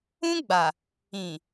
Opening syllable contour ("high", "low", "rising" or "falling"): high